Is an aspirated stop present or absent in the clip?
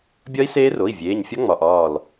absent